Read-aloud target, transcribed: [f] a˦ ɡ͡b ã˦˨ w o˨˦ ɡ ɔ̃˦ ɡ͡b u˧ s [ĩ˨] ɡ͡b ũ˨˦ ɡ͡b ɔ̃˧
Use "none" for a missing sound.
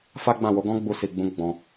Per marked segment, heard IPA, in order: f, i˨

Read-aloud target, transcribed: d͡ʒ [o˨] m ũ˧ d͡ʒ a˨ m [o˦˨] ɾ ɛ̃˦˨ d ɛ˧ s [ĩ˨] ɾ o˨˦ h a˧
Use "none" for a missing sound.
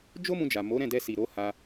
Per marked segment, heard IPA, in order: o˦, o˨˦, i˨

